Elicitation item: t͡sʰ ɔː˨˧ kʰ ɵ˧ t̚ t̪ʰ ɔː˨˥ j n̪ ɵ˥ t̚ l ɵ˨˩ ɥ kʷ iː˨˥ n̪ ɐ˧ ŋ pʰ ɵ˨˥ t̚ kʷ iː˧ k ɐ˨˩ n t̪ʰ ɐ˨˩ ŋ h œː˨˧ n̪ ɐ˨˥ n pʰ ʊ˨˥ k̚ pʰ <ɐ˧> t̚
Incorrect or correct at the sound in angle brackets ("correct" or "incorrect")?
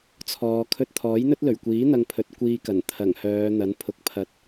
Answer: incorrect